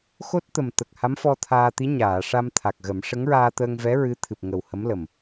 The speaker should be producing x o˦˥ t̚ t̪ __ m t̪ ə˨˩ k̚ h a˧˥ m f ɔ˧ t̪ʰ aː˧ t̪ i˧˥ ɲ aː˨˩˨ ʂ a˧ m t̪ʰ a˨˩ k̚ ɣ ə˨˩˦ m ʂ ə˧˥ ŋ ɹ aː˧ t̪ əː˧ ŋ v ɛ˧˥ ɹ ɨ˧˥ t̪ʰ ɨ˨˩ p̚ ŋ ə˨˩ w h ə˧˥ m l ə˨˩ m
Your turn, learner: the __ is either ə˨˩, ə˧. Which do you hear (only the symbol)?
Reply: ə˨˩